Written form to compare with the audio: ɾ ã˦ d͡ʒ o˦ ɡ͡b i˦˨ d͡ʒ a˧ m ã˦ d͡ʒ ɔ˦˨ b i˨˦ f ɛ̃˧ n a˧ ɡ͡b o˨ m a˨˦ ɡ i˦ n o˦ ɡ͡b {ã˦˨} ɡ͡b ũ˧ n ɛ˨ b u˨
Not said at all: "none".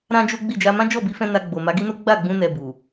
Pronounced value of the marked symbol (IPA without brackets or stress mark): a˦˨